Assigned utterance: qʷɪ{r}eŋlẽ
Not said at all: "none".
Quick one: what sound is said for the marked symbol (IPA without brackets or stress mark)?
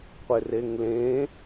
r